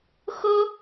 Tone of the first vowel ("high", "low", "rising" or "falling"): high